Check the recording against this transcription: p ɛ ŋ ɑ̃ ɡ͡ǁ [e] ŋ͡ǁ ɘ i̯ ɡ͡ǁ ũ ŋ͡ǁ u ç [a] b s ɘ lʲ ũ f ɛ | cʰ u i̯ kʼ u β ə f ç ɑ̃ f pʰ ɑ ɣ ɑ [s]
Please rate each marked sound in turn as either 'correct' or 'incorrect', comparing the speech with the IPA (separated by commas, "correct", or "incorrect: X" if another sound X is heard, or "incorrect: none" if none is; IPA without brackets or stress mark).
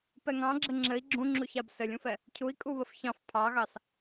incorrect: ɘ, correct, correct